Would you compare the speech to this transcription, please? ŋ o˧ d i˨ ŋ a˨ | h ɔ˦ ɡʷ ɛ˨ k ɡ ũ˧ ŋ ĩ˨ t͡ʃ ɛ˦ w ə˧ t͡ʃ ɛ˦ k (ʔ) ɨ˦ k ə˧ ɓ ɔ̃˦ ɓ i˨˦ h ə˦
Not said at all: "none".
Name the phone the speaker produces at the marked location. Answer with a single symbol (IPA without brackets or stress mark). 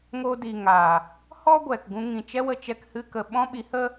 h